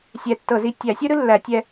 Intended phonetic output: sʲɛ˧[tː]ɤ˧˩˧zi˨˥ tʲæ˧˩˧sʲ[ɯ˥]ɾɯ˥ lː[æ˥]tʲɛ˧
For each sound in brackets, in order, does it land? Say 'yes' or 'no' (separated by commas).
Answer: yes, yes, no